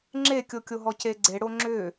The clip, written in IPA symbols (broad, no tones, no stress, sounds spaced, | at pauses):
ŋ͡ǁ e kʲ o kʲ o ɦ ɔ c e ɡ͡ǀ e ɽ o ŋ͡ǁ ʏ